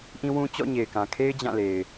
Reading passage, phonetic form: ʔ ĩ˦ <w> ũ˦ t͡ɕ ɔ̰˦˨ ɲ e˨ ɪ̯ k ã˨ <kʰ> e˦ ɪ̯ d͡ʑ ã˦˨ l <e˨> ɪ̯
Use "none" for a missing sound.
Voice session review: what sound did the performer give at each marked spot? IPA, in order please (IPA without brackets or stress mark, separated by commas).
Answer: w, kʰ, e˨